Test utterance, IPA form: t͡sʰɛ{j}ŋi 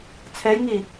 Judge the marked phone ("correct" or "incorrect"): correct